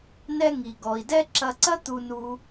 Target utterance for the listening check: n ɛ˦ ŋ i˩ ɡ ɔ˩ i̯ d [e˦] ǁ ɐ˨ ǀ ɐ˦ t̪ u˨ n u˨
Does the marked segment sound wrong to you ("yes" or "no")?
yes